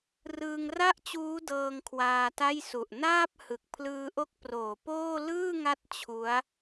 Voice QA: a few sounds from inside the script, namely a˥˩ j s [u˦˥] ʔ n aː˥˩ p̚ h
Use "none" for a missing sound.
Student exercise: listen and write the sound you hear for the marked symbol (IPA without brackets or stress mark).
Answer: u˨˩